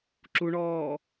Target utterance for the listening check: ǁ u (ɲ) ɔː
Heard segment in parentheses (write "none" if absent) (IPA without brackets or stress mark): ɳ